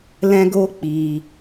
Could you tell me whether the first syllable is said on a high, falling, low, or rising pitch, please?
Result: high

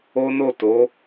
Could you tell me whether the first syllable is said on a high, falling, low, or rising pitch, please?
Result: high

